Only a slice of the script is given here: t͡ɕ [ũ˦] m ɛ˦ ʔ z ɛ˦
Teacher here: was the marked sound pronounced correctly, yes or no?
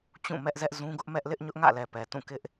no